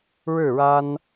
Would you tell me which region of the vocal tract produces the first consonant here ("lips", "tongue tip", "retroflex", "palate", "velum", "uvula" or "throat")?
retroflex